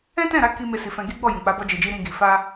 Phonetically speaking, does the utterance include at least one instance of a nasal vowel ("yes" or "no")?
yes